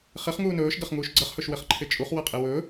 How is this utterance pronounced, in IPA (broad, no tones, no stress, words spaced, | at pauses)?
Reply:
χɪχ ŋuːnɵːʃ dɐχŋuːʃɡ͡ǀɐχ hɵʃwɪχǃʰɪt͡ʃʼuχ wɐqʼewɵː